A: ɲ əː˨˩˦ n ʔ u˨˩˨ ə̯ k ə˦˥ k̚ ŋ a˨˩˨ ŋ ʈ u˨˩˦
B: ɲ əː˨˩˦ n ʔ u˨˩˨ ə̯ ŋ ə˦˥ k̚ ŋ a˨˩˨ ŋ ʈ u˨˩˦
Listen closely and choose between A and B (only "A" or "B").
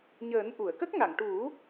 A